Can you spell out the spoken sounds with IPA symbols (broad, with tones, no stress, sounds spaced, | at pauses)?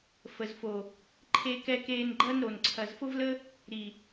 f ə˨ z f o˨ | ǃʰ e˧ k ɛ˧ k eː˧ n ɡ͡ǃ ɐ˦ n ɾ o˨ n ǀʰ ɐ˨ z f ʊ˦ v l ə˦ | ɾ i˨